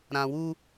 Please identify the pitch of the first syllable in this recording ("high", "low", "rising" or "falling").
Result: low